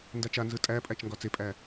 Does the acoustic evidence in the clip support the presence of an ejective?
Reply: yes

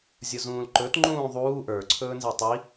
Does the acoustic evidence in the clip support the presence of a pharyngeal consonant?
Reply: no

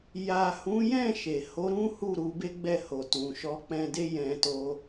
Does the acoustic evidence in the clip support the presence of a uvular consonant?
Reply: no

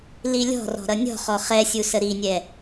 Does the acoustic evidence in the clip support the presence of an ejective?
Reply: no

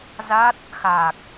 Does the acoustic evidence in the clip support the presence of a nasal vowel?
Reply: no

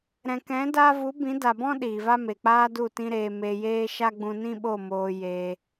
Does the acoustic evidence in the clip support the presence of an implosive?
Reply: yes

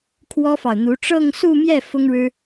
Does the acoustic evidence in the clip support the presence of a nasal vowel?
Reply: no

